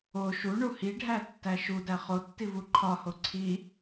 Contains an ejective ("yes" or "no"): no